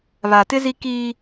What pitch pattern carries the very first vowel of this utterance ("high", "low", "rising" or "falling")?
low